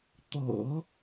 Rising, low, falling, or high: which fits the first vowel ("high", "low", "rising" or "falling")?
low